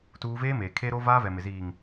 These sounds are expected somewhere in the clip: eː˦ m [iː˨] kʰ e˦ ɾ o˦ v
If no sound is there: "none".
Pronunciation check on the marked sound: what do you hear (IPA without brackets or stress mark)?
eː˨